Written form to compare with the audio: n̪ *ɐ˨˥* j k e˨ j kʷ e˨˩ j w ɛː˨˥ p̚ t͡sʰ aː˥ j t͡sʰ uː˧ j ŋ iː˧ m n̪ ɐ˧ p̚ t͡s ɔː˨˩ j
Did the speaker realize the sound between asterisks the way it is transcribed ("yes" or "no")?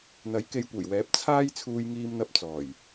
yes